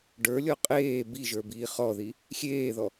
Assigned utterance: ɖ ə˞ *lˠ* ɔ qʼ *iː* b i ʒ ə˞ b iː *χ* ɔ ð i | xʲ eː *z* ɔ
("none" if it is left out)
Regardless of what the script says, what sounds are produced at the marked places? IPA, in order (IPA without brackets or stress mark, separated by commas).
lʲ, eː, χ, ð